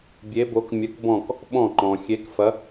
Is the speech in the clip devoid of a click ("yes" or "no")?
no